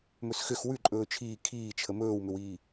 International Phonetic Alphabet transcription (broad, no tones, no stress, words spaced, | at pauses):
mɵsxʏx wʉǃʼɵː t͡ʃʰiː kʰiːt͡ʃʰə mɵːwmʏwiː